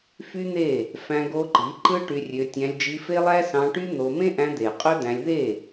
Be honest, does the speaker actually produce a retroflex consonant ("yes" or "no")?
yes